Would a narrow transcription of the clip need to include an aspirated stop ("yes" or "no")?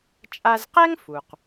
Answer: no